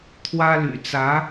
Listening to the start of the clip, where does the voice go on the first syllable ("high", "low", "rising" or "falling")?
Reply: high